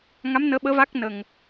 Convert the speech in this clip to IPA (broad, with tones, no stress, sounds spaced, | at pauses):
ŋ a˧˥ m n əː˧˥ ɓ əː˧˥ v a˦˥ k̚ n ə˨˩ ŋ